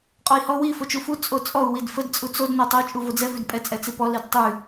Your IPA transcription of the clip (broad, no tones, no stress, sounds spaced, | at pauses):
qʼ ɔ i̯ h ɔ w i f o t͡ʃ u f u t͡sʼ o t͡sʼ ɔ u̯ w i d f ə d t͡sʼ u t͡s o d n o tˤ o t͡ʃʼ u v o d͡z ɛ v ʉ d pʼ ɛ t͡sʼ ɛ t͡s i p ɔ l i d tˤ ʉ